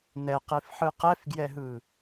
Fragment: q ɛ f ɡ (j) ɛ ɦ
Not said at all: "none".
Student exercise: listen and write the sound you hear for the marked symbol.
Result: j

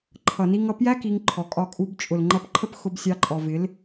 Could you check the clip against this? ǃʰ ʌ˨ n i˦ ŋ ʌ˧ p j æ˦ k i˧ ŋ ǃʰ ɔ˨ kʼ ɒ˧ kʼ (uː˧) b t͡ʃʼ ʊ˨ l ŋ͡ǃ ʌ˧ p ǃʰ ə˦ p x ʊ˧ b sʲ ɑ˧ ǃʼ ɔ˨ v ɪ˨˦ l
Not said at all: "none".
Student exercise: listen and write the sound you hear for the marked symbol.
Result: u˧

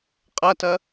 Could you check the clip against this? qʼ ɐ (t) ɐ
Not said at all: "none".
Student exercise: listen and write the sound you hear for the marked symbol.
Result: t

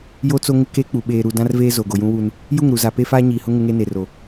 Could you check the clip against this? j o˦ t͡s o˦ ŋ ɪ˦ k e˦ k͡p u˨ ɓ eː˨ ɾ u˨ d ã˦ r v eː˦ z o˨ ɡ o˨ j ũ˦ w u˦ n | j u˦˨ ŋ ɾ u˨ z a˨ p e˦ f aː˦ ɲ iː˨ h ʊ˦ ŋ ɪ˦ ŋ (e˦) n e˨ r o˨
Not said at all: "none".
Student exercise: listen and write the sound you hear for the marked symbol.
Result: e˦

